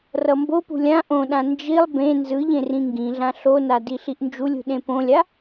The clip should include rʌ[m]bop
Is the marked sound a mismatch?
no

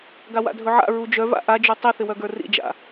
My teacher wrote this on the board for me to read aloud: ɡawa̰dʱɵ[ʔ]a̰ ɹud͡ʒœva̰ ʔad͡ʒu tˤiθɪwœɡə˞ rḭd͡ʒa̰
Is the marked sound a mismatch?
yes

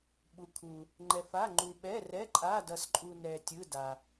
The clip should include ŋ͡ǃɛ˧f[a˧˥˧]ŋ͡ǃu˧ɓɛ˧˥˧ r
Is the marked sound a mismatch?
no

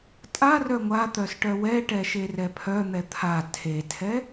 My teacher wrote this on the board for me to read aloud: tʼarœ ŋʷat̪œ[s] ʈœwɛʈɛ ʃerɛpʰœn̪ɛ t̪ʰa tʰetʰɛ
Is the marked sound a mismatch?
no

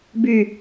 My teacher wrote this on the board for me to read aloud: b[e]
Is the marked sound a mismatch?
yes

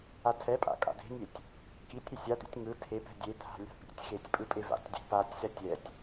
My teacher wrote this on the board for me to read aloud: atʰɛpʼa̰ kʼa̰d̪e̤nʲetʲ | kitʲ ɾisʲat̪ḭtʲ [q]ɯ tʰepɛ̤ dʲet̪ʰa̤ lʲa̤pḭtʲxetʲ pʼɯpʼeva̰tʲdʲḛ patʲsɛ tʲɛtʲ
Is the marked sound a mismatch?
yes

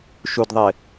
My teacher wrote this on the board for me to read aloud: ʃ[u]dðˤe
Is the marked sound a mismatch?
no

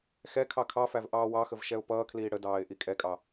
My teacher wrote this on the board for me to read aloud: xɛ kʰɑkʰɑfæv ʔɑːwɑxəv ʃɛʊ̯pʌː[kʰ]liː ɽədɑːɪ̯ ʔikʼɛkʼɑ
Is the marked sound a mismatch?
no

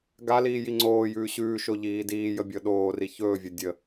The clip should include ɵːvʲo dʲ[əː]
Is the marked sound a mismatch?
yes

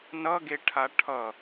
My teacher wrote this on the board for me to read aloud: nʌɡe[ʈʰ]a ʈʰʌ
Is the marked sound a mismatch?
no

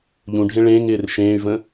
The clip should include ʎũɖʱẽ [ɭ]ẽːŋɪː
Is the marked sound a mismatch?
no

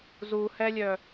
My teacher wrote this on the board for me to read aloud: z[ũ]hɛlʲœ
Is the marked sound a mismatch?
yes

